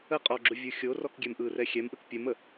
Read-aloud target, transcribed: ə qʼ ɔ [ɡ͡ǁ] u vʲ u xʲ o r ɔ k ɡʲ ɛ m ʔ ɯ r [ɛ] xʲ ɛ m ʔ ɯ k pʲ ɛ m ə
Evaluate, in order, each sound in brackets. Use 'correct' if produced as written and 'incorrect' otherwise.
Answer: correct, correct

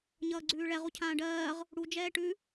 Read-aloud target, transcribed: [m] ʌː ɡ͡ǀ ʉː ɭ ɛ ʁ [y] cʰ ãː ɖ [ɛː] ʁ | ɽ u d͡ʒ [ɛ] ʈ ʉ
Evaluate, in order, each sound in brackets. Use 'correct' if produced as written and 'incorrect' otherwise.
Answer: incorrect, incorrect, incorrect, incorrect

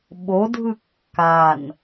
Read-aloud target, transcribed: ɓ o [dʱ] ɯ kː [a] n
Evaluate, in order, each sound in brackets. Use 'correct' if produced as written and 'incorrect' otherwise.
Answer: correct, correct

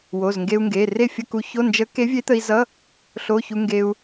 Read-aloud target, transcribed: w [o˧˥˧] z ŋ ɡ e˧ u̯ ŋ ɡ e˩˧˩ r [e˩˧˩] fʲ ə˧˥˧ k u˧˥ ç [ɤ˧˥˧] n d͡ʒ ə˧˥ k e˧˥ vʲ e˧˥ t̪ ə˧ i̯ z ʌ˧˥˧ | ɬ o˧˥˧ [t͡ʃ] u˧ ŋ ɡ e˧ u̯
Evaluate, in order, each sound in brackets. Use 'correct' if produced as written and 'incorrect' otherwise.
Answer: incorrect, incorrect, incorrect, incorrect

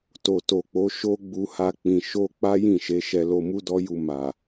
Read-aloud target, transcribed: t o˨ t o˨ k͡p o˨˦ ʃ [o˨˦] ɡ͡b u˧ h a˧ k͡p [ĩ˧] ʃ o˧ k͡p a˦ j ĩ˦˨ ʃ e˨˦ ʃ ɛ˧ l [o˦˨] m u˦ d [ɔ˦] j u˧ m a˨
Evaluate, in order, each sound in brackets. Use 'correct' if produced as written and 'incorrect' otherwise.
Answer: incorrect, incorrect, incorrect, correct

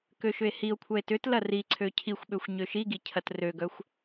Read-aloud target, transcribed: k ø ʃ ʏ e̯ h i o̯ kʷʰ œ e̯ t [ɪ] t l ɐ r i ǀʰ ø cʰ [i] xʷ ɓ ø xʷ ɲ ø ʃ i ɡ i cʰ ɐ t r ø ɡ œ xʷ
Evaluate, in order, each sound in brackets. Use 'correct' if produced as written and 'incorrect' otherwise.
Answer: incorrect, correct

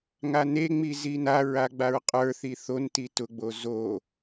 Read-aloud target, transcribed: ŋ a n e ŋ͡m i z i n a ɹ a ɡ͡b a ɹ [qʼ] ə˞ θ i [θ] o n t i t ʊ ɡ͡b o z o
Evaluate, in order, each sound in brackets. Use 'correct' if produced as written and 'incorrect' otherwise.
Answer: correct, correct

